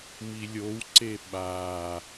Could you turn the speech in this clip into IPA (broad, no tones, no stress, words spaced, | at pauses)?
milʲowǀe ɓa